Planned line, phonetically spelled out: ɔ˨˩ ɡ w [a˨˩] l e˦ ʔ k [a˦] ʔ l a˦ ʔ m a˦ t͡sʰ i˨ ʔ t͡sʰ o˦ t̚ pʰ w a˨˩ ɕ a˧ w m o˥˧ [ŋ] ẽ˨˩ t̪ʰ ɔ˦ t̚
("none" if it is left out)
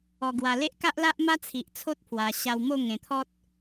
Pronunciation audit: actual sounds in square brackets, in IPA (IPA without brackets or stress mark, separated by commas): a˨˩, a˦, ŋ